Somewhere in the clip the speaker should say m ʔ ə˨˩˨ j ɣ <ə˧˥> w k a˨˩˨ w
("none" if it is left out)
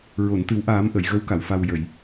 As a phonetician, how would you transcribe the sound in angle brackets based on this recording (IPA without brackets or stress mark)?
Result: ə˧˥